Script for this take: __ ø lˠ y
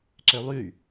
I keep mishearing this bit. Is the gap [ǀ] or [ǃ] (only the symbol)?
ǀ